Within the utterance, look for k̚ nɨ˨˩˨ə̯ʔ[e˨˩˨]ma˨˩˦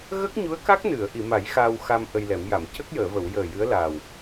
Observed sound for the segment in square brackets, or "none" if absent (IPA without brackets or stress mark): i˨˩˨